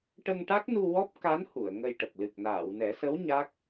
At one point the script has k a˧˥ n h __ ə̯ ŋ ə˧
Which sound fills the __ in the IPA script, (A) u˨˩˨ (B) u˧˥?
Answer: A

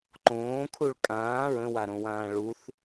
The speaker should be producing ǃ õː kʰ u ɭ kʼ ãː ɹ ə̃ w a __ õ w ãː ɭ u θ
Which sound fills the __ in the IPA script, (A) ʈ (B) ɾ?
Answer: B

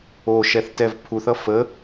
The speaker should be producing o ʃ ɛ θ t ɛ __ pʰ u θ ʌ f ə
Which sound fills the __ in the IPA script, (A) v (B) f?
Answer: A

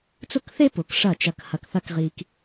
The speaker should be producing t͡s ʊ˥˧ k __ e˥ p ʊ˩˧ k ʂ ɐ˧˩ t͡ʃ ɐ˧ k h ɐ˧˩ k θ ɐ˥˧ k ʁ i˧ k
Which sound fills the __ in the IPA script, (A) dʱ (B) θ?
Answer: B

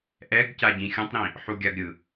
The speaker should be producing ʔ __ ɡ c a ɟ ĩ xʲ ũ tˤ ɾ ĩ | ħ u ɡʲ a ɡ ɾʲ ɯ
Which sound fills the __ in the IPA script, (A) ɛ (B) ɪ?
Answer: A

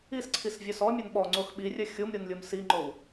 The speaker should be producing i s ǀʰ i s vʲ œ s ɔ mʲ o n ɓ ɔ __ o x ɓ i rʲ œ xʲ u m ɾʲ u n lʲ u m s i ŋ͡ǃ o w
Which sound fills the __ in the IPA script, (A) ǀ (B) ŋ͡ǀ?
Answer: B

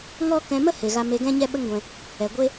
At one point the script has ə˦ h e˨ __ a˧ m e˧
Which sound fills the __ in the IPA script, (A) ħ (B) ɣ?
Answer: B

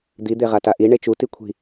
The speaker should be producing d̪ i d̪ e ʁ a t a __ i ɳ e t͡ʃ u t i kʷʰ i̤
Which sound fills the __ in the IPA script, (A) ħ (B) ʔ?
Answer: B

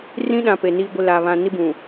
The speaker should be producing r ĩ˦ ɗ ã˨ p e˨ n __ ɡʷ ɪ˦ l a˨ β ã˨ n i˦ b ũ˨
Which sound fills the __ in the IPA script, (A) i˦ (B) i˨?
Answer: A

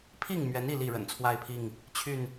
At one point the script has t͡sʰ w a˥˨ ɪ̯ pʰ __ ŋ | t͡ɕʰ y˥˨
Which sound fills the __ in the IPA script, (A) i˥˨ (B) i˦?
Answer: A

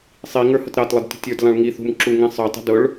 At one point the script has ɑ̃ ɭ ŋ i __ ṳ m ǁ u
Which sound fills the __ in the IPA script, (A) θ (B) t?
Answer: A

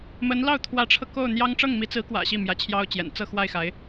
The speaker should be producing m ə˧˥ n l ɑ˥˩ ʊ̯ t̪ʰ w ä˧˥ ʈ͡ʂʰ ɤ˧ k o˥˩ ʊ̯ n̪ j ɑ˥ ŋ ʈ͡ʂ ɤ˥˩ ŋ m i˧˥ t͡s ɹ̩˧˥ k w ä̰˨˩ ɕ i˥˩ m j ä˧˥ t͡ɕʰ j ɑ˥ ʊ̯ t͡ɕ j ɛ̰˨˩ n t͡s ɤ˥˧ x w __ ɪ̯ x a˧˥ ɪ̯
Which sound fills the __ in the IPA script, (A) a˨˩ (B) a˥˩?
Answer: B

